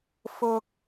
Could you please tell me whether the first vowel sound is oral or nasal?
oral